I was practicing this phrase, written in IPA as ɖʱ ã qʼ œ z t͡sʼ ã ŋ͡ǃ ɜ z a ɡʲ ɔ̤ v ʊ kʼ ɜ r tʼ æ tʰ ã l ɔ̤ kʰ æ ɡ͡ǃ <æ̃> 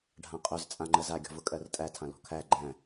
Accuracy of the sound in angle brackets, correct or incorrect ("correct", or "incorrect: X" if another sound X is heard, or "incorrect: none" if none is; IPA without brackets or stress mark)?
correct